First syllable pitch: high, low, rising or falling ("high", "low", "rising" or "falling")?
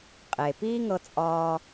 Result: low